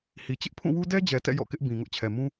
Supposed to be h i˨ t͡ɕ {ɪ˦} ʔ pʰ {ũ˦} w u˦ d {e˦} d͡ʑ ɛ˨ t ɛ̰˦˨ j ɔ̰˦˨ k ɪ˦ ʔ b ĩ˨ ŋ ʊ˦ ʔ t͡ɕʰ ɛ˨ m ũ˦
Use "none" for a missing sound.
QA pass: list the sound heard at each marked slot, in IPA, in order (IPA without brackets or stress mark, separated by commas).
ɪ˦, ũ˦˨, ɛ˦